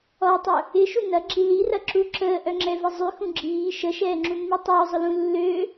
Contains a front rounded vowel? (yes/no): yes